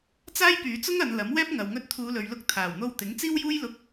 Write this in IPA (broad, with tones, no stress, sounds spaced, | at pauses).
t͡s aː˥ j p yː˨˧ t͡s ʊ˥ ŋ ɐ˨˧ n l ɐ˨˥ m w ɛː˥ p̚ ŋ ɐ˨ w ŋ ɵ˧ t̚ t̪ʰ uː˨˧ l ɵ˨ ɥ l ʊ˧ k̚ t̪ʰ aː˨˩ w n̪ o˧ w t̪ ɪ˨˥ ŋ t͡s iː˥ w j uː˥ j l ʊ˧ k̚